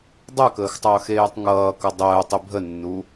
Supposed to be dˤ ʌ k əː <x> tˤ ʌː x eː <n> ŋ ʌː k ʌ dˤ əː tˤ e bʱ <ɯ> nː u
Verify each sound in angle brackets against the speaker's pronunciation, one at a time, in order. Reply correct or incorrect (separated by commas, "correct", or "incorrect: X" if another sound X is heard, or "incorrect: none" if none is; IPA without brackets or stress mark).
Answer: correct, incorrect: tˤ, incorrect: ə